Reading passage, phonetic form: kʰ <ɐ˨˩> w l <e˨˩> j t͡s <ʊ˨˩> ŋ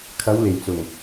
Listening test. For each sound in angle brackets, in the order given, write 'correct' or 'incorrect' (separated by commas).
incorrect, correct, correct